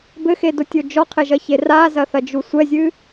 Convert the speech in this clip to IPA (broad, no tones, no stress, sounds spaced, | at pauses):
b ɘ x e d o tʲ o d͡ʒ ɔ qʰ e ʒ ɐ ç e r a z ɐ θ ɐ d͡ʒ u sʷ ɛ zʲ ɨ